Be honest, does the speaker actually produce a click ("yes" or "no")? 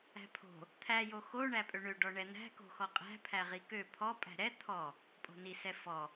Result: no